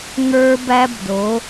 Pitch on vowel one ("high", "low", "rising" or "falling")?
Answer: high